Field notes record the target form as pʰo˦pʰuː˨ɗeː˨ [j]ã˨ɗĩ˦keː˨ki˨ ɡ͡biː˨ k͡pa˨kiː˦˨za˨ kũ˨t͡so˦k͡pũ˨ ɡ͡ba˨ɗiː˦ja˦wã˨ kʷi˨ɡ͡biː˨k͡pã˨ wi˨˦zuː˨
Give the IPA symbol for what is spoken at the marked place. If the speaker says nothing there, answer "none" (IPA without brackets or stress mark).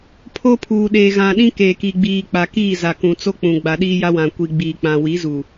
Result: ɣ